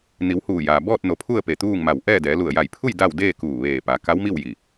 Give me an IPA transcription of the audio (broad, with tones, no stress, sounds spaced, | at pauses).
n i˩˧ w h uː˧˩ j aː˩ b ɔː˥˨ t̚ n o˩˧ pʰ u˥˨ ə̯ p e˧˩ t̪ uː˥˨ ŋ m a˧˩ w ʔ ɛː˥˨ d ɛː˩˧ l u˧˩ ə̯ j a˧˩ j pʰ u˥˨ j d a˥˨ w d eː˥˨ k uː˧˩ ʋ eː˧˩ p a˩˧ k a˧˥ w m i˥˨ w j i˧˩